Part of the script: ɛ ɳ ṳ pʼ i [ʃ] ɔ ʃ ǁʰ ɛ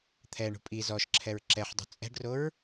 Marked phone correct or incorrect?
incorrect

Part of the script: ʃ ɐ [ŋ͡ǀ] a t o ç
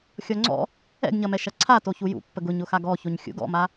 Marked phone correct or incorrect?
incorrect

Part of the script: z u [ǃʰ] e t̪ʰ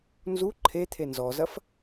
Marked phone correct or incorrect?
correct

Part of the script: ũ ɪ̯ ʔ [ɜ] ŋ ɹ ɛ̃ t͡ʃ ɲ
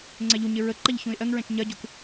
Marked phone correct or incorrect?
correct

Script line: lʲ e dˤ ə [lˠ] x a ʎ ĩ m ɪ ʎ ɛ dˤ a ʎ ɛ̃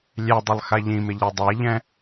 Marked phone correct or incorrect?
correct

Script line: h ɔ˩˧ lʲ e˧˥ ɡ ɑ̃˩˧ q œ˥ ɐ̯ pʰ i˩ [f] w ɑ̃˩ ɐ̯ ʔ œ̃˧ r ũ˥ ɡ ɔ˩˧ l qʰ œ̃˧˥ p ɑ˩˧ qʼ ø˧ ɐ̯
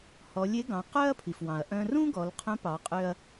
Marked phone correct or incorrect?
correct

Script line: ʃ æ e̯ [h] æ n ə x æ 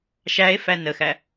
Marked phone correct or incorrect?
incorrect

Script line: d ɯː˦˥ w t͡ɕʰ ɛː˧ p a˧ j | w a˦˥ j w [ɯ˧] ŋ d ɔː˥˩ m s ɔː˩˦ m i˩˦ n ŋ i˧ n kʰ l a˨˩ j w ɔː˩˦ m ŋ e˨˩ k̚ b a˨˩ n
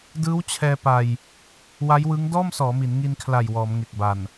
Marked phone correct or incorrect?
incorrect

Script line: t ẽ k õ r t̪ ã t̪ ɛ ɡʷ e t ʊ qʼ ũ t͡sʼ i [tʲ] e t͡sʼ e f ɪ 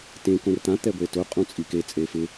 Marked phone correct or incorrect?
incorrect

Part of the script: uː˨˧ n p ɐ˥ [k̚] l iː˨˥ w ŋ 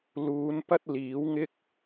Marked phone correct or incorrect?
incorrect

